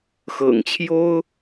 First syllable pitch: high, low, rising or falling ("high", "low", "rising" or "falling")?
low